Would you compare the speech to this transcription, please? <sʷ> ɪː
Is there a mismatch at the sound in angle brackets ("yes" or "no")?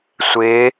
no